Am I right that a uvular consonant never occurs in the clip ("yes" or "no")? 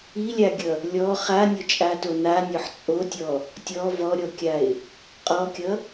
no